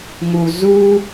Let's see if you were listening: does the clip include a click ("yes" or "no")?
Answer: no